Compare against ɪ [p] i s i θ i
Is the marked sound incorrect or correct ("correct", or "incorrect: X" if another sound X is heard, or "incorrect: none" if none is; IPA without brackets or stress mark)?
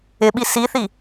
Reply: incorrect: ɓ